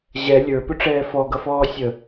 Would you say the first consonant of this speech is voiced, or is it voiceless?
voiced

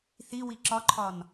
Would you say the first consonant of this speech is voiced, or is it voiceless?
voiceless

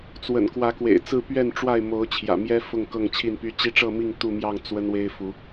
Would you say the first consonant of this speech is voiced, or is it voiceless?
voiceless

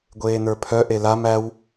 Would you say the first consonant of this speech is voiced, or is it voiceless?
voiced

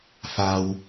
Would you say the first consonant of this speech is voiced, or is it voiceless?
voiceless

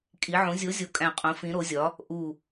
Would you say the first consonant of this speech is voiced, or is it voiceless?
voiceless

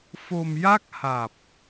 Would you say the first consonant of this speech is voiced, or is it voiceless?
voiceless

